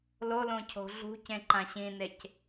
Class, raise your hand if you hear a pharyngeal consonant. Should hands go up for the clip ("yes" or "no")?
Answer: no